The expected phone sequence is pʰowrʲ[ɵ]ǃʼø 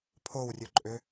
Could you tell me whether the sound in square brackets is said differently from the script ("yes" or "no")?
no